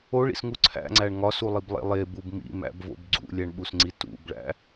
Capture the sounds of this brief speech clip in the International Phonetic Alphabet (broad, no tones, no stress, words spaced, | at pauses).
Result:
oɭḭsŋu ǀʰæ̰ŋ͡ǀæɳ ŋɒsulˠiblˠḛ lˠebub mḭmæ̰bvo̰b ɡ͡ǀṵlʲæɳɓusŋ͡ǀi tṵbɭæ̰